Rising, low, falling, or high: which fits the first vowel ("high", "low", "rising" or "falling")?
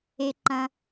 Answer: low